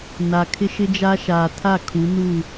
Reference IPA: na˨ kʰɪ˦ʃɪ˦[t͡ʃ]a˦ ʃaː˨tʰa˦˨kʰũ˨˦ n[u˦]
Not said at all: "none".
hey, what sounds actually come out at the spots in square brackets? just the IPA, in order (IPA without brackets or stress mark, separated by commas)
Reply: d͡ʒ, u˦˨